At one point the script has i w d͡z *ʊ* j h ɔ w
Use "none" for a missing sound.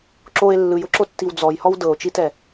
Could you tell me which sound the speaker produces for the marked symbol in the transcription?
ɔ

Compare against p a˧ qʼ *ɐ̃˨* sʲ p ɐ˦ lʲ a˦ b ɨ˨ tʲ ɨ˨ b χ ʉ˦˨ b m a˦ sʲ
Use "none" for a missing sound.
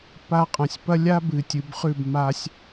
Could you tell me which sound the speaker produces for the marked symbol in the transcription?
ɐ̃˨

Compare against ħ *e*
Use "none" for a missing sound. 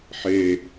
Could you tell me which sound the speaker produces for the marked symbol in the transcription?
e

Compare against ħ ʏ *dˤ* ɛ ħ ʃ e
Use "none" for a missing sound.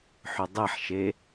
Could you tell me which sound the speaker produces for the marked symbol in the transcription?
dˤ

